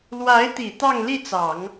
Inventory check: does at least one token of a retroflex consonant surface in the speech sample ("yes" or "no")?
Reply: no